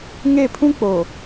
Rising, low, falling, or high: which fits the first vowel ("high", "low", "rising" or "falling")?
falling